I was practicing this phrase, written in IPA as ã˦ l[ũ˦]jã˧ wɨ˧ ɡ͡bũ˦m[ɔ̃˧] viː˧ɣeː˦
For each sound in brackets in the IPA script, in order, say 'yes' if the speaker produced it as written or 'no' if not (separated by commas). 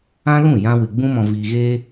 no, yes